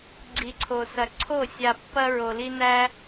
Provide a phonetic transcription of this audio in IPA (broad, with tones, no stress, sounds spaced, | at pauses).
ɡ͡ǀ i˨ ǀʰ o˨ s ɐ˨ ǀʰ o˦˨ sʲ a˧ pː ɐ˦ ɹ o˧ l i˦ n æ˦